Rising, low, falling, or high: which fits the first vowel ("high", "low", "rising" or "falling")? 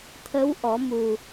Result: rising